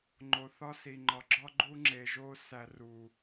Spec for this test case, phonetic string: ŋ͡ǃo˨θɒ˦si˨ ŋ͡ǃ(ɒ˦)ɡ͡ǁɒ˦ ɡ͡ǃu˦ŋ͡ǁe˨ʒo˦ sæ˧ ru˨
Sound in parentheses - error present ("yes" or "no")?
yes